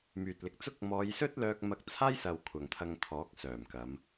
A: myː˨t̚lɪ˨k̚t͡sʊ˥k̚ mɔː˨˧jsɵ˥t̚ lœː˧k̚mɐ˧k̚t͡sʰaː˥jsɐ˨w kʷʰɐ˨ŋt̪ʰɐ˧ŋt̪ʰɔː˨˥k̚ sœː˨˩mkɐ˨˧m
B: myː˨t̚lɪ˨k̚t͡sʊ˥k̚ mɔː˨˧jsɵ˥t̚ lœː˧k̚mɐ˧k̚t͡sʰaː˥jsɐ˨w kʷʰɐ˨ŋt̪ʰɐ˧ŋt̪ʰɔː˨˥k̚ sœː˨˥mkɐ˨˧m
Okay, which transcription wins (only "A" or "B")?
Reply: A